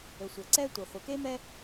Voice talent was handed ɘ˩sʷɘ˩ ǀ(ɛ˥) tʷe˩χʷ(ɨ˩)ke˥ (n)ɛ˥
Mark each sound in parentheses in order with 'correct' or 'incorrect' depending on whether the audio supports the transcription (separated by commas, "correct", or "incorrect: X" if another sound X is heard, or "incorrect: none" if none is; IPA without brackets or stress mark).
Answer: correct, incorrect: e˩, incorrect: m